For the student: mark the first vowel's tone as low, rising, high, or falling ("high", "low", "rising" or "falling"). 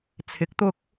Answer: rising